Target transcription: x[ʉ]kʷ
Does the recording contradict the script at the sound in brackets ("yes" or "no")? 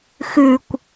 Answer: no